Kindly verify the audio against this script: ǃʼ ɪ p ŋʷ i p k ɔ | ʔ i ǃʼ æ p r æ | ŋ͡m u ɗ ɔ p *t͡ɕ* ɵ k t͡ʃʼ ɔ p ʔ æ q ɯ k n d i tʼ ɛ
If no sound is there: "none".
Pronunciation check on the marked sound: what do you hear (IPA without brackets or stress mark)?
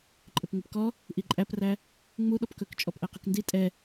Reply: k